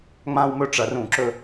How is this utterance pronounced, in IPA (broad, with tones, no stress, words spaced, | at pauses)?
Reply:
ŋ͡mã˦wmɵ˦ʈ͡ʂɐ˨˩˦r ũ˨˩˦ǁɵ˦